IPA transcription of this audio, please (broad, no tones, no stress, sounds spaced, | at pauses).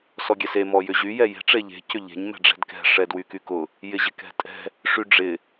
s ɔ ɡʲ ɛ s e m ɔ j ʏ ʑ y j ɛ j e̤ ʈ͡ʂ e ʎ e̤ c ʏ ʎ e̤ ɲ m ɛ̤ ɖ͡ʐ ɛ̤ d k ɛ̤ ʂ ɛ d w y k y k ʊ | j ɪ ʑ ɪ k ɛ̤ tʼ ɛ̤ | ʂ y ɖ͡ʐ ɪ